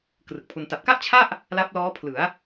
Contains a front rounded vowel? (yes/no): no